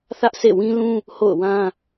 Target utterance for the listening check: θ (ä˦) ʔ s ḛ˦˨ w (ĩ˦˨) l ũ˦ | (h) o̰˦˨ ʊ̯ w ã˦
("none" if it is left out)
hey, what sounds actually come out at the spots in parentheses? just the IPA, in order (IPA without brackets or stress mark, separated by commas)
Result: ä˦, ĩ˦, h